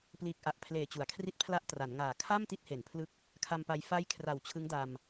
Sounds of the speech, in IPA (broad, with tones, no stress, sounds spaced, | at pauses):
p l iː˨˩ k̚ ʔ a˨˩ ʔ pʰ l eː˨˩ t͡ɕ u˩˦ a̯ kʰ r i˥˩ t̚ pʰ l a˥˩ ʔ t r a˩˦ n ŋ aː˨˩ kʰ a˥˩ m t i˥˩ t̚ h e˩˦ n pʰ l ɯ˦˥ k̚ | kʰ a˧ m p a˧ j f a˦˥ j kʰ r a˨˩ w t͡ɕʰ ɯ˦˥ ŋ d a˧ m